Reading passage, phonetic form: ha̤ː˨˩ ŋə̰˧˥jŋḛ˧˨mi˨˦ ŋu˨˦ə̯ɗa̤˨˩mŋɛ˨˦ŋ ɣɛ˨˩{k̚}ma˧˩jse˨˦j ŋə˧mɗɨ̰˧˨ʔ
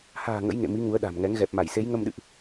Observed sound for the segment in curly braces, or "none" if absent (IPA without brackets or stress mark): p̚